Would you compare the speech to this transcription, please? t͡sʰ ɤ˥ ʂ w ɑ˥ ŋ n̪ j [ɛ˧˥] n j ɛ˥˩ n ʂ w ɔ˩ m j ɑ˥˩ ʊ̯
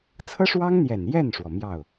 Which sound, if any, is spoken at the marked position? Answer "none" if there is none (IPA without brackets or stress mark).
ɛ˨˩